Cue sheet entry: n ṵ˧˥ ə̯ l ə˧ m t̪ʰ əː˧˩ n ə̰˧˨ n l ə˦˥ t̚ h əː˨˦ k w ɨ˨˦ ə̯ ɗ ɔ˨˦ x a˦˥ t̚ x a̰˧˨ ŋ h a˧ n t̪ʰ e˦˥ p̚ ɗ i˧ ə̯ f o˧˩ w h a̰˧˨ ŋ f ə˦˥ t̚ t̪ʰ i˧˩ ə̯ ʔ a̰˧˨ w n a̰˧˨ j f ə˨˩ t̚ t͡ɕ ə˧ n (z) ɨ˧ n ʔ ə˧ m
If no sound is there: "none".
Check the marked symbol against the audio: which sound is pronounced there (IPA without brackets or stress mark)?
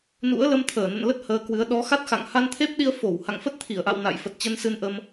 s